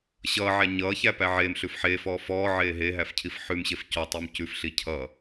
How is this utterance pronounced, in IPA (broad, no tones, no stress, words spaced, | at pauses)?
ɕʌːʕæ ɲʌːçæpæ ʕeːmɬʉf ħeːfɔː fɔːʕeː ɦeɦæfcʰif ħʉmɕef cɔtˤʉm cʉfɬi cʰʌ